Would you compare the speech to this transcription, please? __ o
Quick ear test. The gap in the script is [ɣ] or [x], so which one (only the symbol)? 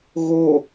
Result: ɣ